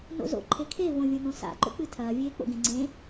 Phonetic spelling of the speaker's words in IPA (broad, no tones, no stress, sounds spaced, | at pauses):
n o̰ z o̰ ǃʰ e kʰ e v õ vʲ õ n õ s a̰ ǃ o̰ k͡p ɨ tʰ ɐː vʲ eː k͡p o̰ ɡ ẽ ŋ͡ǀ ẽ